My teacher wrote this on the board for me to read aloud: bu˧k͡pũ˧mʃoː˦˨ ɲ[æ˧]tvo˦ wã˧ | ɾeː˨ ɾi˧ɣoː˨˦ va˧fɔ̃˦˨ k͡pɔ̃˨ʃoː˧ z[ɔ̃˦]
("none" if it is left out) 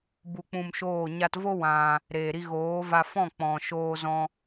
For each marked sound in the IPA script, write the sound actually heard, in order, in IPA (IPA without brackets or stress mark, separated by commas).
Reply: a˧, ɔ̃˧